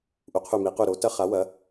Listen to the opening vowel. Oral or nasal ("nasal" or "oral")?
oral